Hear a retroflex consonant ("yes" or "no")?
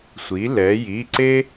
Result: no